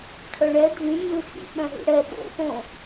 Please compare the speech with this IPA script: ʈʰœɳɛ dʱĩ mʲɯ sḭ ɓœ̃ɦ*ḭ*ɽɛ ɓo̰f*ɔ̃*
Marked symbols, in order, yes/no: yes, no

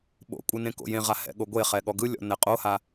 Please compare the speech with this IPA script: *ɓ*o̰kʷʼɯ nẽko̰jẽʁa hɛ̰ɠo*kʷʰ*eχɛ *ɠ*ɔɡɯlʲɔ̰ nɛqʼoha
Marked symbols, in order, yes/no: yes, no, yes

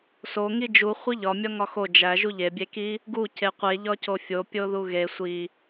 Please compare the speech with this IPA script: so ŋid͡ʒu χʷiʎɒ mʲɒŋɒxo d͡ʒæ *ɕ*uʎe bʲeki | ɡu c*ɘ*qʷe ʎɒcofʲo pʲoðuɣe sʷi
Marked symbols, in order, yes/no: no, no

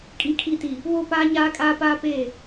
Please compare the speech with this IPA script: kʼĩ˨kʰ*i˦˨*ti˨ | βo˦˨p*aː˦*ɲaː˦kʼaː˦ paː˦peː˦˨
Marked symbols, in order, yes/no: yes, yes

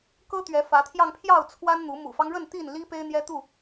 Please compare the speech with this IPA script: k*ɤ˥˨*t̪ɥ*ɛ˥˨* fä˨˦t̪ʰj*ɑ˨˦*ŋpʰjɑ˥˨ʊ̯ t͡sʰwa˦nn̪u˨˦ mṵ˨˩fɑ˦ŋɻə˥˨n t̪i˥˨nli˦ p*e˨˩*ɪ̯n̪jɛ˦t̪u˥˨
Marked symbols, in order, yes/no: no, no, no, no

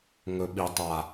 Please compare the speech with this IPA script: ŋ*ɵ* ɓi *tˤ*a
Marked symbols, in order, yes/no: yes, yes

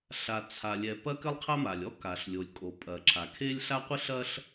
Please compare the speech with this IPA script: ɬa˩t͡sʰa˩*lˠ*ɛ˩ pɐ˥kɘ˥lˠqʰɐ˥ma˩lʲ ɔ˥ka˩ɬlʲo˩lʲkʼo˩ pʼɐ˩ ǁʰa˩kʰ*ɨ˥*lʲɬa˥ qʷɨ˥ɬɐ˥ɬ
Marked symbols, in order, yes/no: no, no

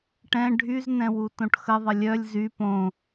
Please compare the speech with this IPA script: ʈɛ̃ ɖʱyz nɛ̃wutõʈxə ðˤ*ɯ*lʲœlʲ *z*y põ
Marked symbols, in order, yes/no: no, yes

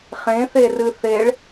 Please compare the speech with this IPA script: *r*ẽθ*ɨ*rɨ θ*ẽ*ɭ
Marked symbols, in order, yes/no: no, no, no

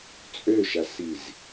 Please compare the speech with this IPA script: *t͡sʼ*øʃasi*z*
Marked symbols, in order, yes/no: yes, yes

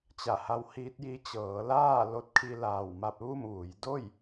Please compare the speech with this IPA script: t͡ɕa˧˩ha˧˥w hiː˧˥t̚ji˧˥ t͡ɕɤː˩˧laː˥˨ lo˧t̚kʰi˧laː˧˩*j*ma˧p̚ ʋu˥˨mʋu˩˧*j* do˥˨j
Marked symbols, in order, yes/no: no, yes

